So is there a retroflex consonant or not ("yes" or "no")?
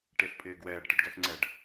yes